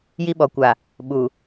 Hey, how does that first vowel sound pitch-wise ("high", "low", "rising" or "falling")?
high